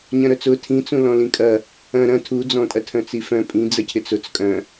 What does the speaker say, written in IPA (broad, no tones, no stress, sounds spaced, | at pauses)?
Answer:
ɲ ɐ̃ ɾ œ t͡s ʊ tʰ ĩ t͡s ũ l ɔ̃ l ĩ kʼ ɐ | ɐ̃ ɾ ɐ̃ tʰ u d͡z ɔ̃ tʼ ɐ tʰ œ̃ t͡s i f œ̃ pʼ ĩ d͡z ə cʰ ɪ t͡s ʊ t͡s kʼ œ̃